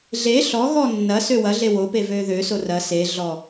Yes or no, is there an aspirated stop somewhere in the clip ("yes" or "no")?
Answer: no